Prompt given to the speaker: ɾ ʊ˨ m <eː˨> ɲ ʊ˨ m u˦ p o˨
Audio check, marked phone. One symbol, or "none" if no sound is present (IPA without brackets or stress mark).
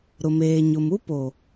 eː˨